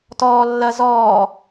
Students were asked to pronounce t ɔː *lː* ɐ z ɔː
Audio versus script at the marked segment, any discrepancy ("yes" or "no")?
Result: no